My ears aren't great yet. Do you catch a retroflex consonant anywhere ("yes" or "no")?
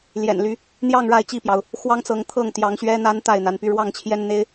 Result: yes